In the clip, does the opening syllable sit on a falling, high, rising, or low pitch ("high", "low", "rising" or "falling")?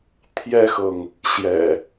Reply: high